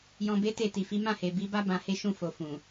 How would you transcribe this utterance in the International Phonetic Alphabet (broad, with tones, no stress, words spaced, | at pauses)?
jɔ̃˧ be˦te˦˨ ti˨fi˨˦ mã˦˨he˨ bi˨˦ba˦ bã˧he˦ ʃũ˦˨fo˨ fũ˨